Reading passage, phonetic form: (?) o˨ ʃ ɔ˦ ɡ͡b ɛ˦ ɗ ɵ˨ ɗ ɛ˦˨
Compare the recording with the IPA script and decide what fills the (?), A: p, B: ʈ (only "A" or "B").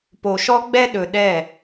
A